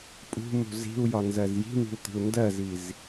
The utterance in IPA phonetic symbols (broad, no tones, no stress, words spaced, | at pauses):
pʼṳmṳ zi̤u̯jɒnzɜz ji̤mi̤u̯t̪i̤u̯ ndɜziz